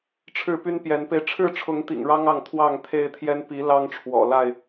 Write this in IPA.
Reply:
ʈ͡ʂʰ ɻ̩˥˨ p y˦ n p j ɛ˨˦ n p e˧ ɪ̯ ʈ͡ʂʰ ɻ̩˥˨ ʈ͡ʂʰ ʊ˨˦ ŋ t̪ ḭ˨˩ ŋ ɻ ɑ˦ ŋ ɑ˥˨ ŋ t̪ʰ w ɑ˥˨ ŋ t̪ʰ e˦ ɪ̯ t̪ʰ j ɛ˦ n p i˨˦ l ɑ˦ ŋ ʈ͡ʂʰ w ɔ̰˨˩ l a˥˨ ɪ̯

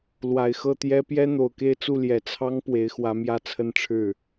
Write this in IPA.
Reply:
l w a˨˩ ɪ̯ x ɤ˥˩ t̪ j ɛ˥ p j ɛ˥ n̪ o˨˩ ʊ̯ k e˥˧ ɪ̯ t͡s u˥˩ l j ɛ˨˩ t͡sʰ ɑ˥ ŋ p w e˧˥ ɪ̯ x w ä˧˥ m j ä˥˧ t͡sʰ ə˥˧ n ʈ͡ʂʰ ɻ̩˥˩

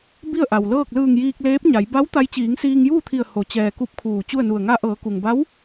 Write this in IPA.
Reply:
b i˥˨ ə̯ ʔ a˩ w l ɤː˥˨ k̚ l ɯː˧˩ ŋ j iː˧ k̚ l eː˧˥ p̚ ɲ a˩˧ j b a˧˥ w t̪ a˧˥ j t͡ɕ iː˩˧ ŋ s iː˧ ŋ j uː˥˨ t̪ʰ i˧˩ ə̯ h o˩˧ t͡ɕ ɛː˩ k u˥˨ p̚ kʰ uː˧˩ t͡ɕ u˥˨ ə̯ n u˧˩ ə̯ ŋ a˧ ʔ ɤː˩˧ k u˩ ŋ b a˧˥ w

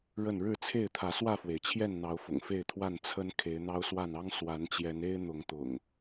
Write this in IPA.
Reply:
ɻ ə˥˨ n ɻ ɻ̩˥˨ t͡sʰ e˥˨ ɪ̯ t̪ʰ ä˨˦ s w ä˥˨ f w e˩ ɪ̯ t͡ɕʰ j ɛ˥˨ n n̪ ɑ˨˦ ʊ̯ f ʊ̰˨˩ ŋ f e˥˨ ɪ̯ t̪ʰ w a˥˨ n t͡sʰ ə˦ n kʰ e˨˦ ɪ̯ n̪ ɑ˦ ʊ̯ s w a˥˨ n ɑ˦ ŋ s w a˨˦ n t͡ɕ j ɛ˨˦ n e˦ ɪ̯ n̪ ʊ˨˦ ŋ t̪ ʊ̰˨˩ ŋ

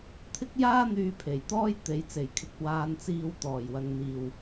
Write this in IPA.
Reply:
t̪ʰ ɪ˥ k̚ j aː˥ n̪ yː˧ pʰ e˨˩ j t̪ ɔː˥ j t̪ e˨˥ j t͡s e˨˩ j kʰ ɪ˧ k̚ w aː˧ n t͡s iː˧ w t̪ ɔː˨˩ j w ɐ˨ ŋ n̪ iː˨˩ w

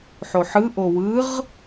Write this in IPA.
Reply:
ħ o ħ ɯ ʔ o w ɯ ʁ

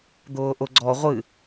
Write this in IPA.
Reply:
d̪ ʊː ʔ ʊ ɡ͡ǀ ɔ ʁʷ ɨ

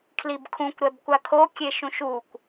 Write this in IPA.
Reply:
kʰ l i b kʰ ũ kʷ ɾ ɛ b kʷ a kʰ o kʲ e ʃ ũ ʃ u kʷ

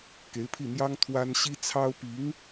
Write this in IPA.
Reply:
k e˧˥ ɪ̯ pʰ i˥˩ n̪ j ɑ˥ ŋ t̪ʰ w a˥ n ɕ i˥ t͡sʰ ɑ˥ ʊ̯ p i˧˥ ŋ

